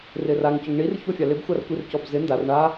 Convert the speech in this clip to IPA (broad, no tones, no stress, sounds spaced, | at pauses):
r ɪ r a ŋ c ʊ ŋ ɳ i r ç o fʲ a l ɪ b xʷ a r kʷ i r c ɔ b z ɪ n d a r ɳ a